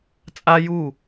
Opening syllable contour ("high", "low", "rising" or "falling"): high